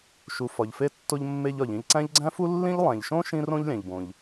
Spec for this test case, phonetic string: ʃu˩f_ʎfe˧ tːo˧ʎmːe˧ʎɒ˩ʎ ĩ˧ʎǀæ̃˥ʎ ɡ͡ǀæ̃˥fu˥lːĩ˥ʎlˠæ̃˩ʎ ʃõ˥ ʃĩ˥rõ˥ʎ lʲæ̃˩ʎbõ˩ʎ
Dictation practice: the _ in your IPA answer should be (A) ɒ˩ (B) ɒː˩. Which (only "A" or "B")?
A